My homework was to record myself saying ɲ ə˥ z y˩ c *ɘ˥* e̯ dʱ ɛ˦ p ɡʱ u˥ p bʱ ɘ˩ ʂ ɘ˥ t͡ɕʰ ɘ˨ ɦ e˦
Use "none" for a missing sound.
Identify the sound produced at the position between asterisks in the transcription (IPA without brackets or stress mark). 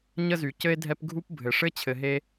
ɘ˥